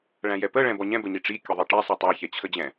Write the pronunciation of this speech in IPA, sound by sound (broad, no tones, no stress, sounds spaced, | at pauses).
ɭ æ̃ j ɛ p ə ɭ ɛ̃ b ɔ ɲ ɛ̃ b ə ɲ i ʈ͡ʂ i kʲ ə ðˤ i ʈ ɛ sˤ i tˤ æ ç ɛ t͡ɕʰ ə d͡ʑ ɛ̃